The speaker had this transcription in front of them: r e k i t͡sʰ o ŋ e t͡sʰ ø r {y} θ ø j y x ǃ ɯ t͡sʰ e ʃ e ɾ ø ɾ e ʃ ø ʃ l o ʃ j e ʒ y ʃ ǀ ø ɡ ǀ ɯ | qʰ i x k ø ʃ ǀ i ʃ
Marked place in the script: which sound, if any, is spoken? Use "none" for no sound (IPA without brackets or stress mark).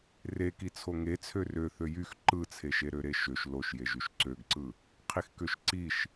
ø